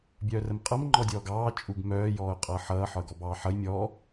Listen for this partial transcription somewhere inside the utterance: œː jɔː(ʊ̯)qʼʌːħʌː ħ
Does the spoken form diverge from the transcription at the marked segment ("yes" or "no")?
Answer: no